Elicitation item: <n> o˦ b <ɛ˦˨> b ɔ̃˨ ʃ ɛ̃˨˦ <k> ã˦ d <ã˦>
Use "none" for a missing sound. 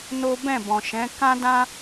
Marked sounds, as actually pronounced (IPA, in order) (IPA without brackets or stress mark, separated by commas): n, ɛ̃˦˨, k, ã˦